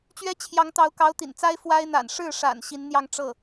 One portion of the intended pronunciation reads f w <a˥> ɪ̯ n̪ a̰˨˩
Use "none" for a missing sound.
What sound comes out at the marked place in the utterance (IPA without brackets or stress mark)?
a˥